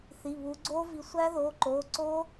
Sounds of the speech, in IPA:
θ i˩˧˩ β u˨˦ ɡ͡ǀ o˦˥ v i˨˦ sʷ æ˦˥ ð o˩˧˩ ǃ o˩˧˩ ǀ o˦˥

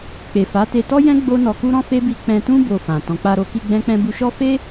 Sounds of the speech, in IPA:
k͡p e˨ f a˨˦ t e˧ t ɔ˦ j ɛ̃˦ ɡ͡b o˦ n ɔ˧ k u˦ ɾ ɔ̃˦ f e˦ b i˧ k͡p ɛ̃˧ t ũ˦ b o˧ f ã˨ t ɔ̃˨ k͡p a˧ ɾ o˧ k i˧ ɡ͡b ɛ̃˦ k͡p ɛ̃˦ b u˦ ʃ ɔ˦ f e˦

